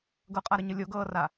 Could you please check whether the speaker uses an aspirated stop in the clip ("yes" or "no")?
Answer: no